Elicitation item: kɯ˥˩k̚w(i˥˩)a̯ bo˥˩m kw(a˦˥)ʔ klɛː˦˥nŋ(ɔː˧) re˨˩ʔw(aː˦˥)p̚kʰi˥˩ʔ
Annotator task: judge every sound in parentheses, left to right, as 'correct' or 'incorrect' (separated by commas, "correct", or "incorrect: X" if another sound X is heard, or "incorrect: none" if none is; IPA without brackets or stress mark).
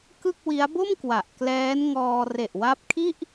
incorrect: i˦˥, incorrect: a˨˩, correct, incorrect: a˦˥